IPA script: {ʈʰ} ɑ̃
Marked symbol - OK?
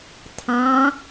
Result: no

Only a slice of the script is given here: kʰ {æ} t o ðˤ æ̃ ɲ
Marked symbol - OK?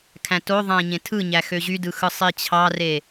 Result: no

